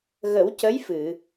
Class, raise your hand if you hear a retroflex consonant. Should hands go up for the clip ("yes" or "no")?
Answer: no